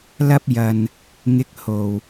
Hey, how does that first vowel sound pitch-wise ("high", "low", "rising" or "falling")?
high